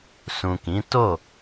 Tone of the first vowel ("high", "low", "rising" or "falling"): low